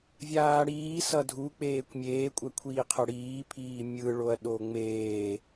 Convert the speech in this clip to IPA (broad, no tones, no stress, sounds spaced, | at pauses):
vʲ aː ɽ iː s ʌ dʱ u k͡p eː kʷ mʲ eː kʷʼ ɛ kʷʰ iː qʰ ʌ ɽ iː pʰ iː mʲ ɯ ɭ o ɐ̯ ɗ o ŋ͡m eː